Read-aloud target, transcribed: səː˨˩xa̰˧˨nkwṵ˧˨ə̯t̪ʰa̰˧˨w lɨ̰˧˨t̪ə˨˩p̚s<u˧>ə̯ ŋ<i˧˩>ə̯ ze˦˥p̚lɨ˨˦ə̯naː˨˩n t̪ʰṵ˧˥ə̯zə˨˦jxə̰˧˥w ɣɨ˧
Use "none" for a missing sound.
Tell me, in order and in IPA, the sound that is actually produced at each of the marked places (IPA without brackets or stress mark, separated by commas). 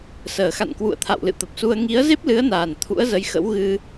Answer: u˧, i˨˦